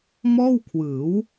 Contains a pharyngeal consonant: no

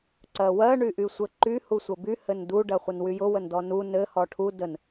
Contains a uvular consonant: yes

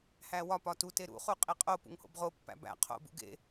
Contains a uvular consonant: yes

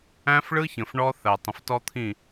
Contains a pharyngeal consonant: no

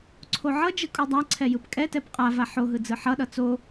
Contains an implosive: yes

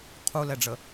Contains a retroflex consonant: yes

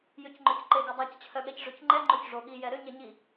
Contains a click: yes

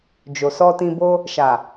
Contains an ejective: no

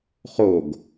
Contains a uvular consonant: yes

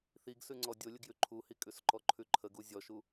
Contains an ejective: yes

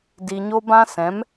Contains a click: no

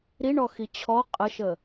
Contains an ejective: yes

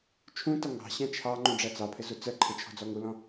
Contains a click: yes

